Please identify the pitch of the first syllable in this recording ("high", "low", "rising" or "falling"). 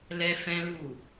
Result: high